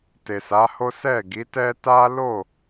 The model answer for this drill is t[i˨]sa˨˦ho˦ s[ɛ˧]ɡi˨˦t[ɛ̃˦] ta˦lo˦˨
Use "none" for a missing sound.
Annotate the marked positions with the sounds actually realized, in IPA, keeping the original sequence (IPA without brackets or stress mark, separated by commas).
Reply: e˨, ɛ˦˨, ɛ˦